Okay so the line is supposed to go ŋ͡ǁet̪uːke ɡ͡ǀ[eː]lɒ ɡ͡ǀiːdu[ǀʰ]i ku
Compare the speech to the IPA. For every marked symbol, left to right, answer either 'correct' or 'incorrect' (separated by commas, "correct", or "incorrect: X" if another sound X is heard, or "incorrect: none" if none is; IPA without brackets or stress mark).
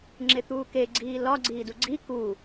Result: incorrect: iː, incorrect: ɡ͡ǀ